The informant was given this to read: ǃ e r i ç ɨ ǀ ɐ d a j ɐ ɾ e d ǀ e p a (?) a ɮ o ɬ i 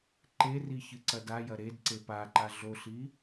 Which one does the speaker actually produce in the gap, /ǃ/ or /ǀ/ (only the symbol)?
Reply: ǃ